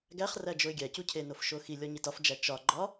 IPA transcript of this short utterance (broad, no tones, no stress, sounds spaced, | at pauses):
ɡ æ χ r æ d͡ʒ o ɪ̯ ɡʲ æ c u cʰ e n o f ʃ o x i lʲ ɒ ɲ i t ɒ f d͡ʒ æ t͡ʃ ɒ ɡ͡ǃ ɒ